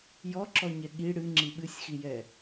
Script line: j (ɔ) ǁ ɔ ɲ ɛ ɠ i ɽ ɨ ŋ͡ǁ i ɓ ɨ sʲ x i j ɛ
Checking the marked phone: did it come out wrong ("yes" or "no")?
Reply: no